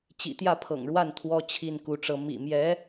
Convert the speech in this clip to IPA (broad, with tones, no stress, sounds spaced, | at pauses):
t͡ɕ ḭ˨˩ t̪ j ä˥˩ pʰ ɤ̰˨˩ ŋ ɻ w a˥˩ n t̪ʰ w ɔ˥ t͡ɕʰ i˥˩ n k u˧˥ ʈ͡ʂ ɤ˧˥ m ḭ˨˩ m j ɛ˧˥